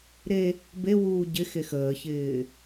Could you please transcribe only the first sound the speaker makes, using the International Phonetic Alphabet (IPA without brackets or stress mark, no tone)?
ɾ